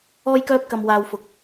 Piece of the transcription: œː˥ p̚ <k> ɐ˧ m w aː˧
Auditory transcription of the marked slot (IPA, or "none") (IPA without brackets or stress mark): k